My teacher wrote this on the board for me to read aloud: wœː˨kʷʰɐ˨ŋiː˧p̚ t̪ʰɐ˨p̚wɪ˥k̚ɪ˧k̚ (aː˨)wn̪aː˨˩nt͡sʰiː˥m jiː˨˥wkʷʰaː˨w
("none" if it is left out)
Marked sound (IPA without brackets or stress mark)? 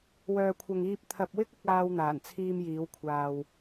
aː˥